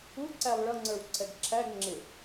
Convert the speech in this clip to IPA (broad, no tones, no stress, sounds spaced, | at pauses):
u ǀ æ lˠ ɭ ʌ ŋ͡ǀ ə˞ w ǀʰ ɛ ɡ ǁʰ æ ɡ ŋ͡ǁ ɪ